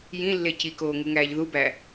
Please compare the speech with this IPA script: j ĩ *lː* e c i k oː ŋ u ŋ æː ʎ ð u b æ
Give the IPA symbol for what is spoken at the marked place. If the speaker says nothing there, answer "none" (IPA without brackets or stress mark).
lː